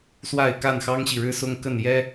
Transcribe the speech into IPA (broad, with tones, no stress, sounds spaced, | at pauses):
s w a˥˨ ɪ̯ k a˥˨ n x ɑ˦ ŋ ɕ i˨ ɻ ɻ̩˦ s ʊ˦ ŋ k ə˥˨ n j ɛ˦